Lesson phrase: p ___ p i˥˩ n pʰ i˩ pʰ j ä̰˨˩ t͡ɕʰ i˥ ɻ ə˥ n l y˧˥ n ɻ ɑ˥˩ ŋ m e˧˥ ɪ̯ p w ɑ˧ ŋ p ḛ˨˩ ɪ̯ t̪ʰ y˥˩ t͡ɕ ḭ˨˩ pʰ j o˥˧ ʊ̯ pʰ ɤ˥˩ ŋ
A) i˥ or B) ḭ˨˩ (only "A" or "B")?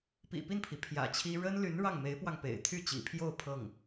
B